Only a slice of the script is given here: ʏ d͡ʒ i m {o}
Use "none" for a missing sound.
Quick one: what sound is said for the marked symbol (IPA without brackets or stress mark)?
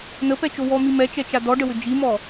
ɔ